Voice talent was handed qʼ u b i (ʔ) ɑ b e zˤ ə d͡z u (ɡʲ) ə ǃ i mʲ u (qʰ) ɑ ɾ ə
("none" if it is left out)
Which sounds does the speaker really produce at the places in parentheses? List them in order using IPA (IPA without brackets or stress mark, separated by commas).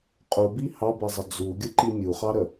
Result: h, ɡʲ, χ